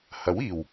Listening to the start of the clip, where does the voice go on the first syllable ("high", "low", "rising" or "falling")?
rising